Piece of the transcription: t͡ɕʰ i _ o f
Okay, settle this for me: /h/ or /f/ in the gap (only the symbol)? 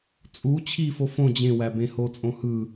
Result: f